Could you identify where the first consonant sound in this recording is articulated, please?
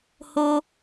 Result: glottal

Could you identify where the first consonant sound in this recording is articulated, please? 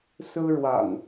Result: alveolar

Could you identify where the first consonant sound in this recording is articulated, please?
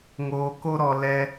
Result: velar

